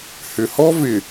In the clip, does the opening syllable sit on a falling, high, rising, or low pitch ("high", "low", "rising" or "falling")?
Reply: low